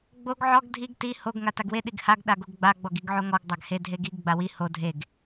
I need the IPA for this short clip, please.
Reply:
ɡ͡b o ɡ ʕ ɔ ɡ dʱ i ɡ t i h o ɡ ŋ a t a ɡ w e ɗ i ɡ h a ɡ ɗ a ɡ o ɡ ɡ͡b a ɡ͡b ɔ ɡ i ɡ ʕ o ŋ ɔ ɡ dˤ a ɡ h e dʱ e ɡ i ɡ ɡ͡b a w i h o dʱ e ɡ

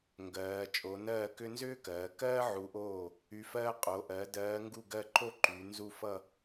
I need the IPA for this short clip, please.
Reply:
ŋ ɡ ɜː˩˧ t͡ʃʼ o˩˧ n ɜː˥˩ k ʏ˥ n z ʏː˥ k ɜː˩˧ k ɜː˥ ʕ u˨˥ ʔ oː˥˩ | y˨˥ f ɜː˥ qʼ o˩˧ ʔ ɜ˩˧ d ɜː˨˥ ŋ ɡ u˥˩ ɡ ɜ˥˩ ǃ o˥˧ ǃ y˩˧ n z u˥˩ f ʌ˥˧

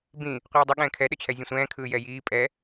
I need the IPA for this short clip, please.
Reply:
b ĩ | qʷ ɯː dˤ ə ɠ ɛ̃ː kʰ ɛ ɗ ə t͡ɕʰ ɛ zʲ ə̃ sʷ ɛ̃ː kʰ ɯː j ɛ j iː pʼ ɛ

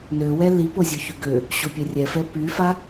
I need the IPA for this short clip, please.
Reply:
n ø w ɛ l i p o zʲ o ç y ɡ ø | ɕ o pʲ ɛ rʲ ɛ f ɛ p y f a

